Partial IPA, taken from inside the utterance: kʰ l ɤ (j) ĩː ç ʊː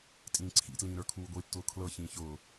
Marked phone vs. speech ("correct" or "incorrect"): incorrect